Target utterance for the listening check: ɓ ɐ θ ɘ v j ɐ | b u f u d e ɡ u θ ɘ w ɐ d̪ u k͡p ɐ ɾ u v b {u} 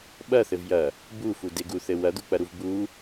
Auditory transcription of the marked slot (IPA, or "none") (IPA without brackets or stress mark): u